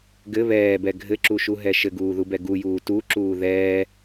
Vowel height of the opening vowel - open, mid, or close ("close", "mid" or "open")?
mid